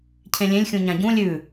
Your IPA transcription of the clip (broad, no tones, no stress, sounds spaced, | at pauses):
cʰ ẽ lʲ ẽ lʲ xʲ ũ ɲ ã ɟ ũ lʲ ʉ